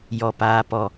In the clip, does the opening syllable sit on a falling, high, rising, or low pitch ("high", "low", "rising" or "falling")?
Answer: low